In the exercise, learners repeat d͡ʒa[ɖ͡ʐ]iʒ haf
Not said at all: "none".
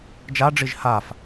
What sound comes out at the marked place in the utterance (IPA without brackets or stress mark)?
ɖ͡ʐ